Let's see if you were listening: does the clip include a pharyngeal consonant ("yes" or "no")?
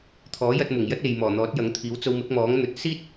no